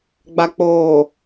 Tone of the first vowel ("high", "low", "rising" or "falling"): low